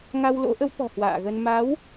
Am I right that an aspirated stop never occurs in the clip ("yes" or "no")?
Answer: yes